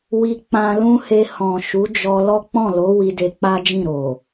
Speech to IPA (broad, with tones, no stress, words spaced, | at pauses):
wi˧k͡pã˧lũ˦he˧ hɔ̃˨ ʃu˨˦d͡ʒɔ˧lɔ˦ k͡pɔ̃˦˨lo˨˦ wi˧de˧k͡pa˦d͡ʒĩ˦˨ ɾo˨